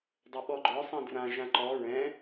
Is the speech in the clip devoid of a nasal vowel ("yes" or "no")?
no